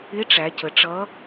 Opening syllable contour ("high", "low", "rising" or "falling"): rising